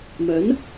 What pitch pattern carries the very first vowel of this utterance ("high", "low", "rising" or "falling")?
rising